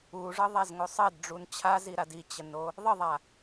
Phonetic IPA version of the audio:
u ʐ ɤ ðˤ a z ŋ o sˤ ɜ d ɖ͡ʐ u n t͡ɕʰ a z i ɾ a d i t͡ɕ ə n o | ðˤ ə ðˤ a

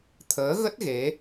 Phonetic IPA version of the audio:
t̪ʰ əː˨˦ ɣ ə˦˥ t̚ ɣ e˨˦

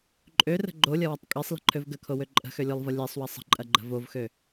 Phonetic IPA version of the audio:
ǃʼ ø r ə̤ ɡ͡ǃ o lʲ ɐ w ɐ tˤ kʼ e sˤ l ə̤ ǃʰ ø v ɡ ə kʰ o w ø ǃʼ ə̤ x ø lʲ o lˠ v ɐ lʲ ɛ sˤ w ɐ sˤ ə̤ ǃʼ ɐ ɡ͡ǃ ə̤ v o v x ø

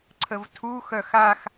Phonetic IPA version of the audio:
ǀʰ ə v tʰ u x œ x a x

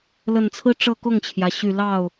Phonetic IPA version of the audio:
l ə˨˩ n t͡sʰ ɹ̩˥ ʈ͡ʂ ɤ˥˧ k ʊ˥˩ ŋ t͡ɕʰ j ä˩ ɕ y˨˩ l ɑ˥˩ ʊ̯

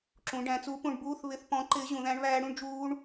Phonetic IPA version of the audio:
ǁ ũ˩˧ ɖ æ̃˩˧ t͡s u˨˥ p ũ˩˧ ɳ b uː˧˥˧ θ β ɪ˧˥˧ θ p ɔ̃˨˥ ǃ ɪː˨˥ ʑ ũ˩˧ ð æ̃˦˥ ɳ β æː˦˥ ɽ ũ˦˥ ɳ d͡ʒ uː˦˥ ɳ

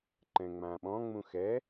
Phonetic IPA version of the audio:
ǃ ɛ̃ ŋ͡m ã ɓ ɔ̃ ŋ͡m ũ x ɛ

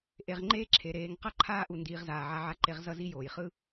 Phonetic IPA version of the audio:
ʔ e˩˧ ʁ ŋ͡ǃ eː˥ ǁʰ e˩ ɾ eː˩˧ ŋ q ʌ˥ ǃʰ aː˥ ʔ u˩˧ n d iː˩˧ ʁ z aː˩ ʕ a˧ ʕ a˧ ǃ e˧ ʁ z ʌ˥ z i˥ j oː˩ j χ ɯ˥

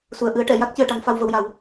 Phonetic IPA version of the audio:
s u˨˩˨ ə̯ ʔ ɨ˨˩˦ ə̯ ʈ ɛ˨˩˨ j a˦˥ k̚ c ɨ˨˩˨ ə̯ ʈ a˨˩˦ ŋ f a˧ w v ə˧ w j a˨˩˦ w

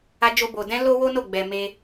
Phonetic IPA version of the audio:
a˦ d͡ʒ o˦ b o˧ d ɛ̃˦ l o˦ w o˦ n o˦˨ ɡ͡b ɛ˧ m e˦

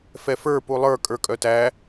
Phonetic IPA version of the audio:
f ɛ f ə˞ p u lˠ ə˞ kʼ ə˞ kʼ œ t æ

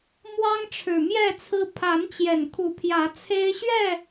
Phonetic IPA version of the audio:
m w ɑ˦ ŋ ʈ͡ʂʰ ɻ̩˨˩ m j ɛ˥˨ t͡sʰ ɹ̩˦ pʰ a˨˦ n t͡ɕ j ɛ˨˩ n kʰ u˨˦ pʰ j ä˨˦ t͡sʰ e˦ ɪ̯ ɕ ɥ ɛ˥˨

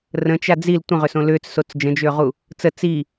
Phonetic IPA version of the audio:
r ə̃ t͡ʃ a d͡z i l tʷ ə̃ ʁ ʏ s õ l ʏː t͡s s o t͡s d͡ʒ ə̃ d͡ʒ ʏː ʁ u | t͡s ə t͡s i

